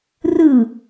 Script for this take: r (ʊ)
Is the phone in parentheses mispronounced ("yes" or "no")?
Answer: yes